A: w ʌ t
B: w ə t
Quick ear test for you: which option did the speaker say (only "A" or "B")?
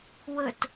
B